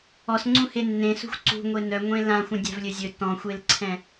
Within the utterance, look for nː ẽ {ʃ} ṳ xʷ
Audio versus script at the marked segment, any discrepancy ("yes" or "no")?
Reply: yes